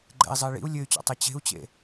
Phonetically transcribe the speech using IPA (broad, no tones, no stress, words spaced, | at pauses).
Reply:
ɡ͡ǃɛ̰i̯zˤɨi̯ ɭḭu̯ lʲɘy̯t͡ɕɔ̰tˤe t͡ɕe̤u̯t͡ɕḛ